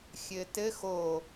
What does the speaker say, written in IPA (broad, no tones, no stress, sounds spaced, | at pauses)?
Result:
xʲ ɘ t ɘ x o